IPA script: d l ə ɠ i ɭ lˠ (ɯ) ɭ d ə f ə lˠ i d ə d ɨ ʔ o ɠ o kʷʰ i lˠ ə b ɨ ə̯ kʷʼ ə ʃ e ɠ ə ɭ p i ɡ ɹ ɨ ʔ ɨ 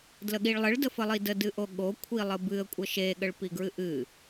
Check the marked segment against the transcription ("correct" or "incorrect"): incorrect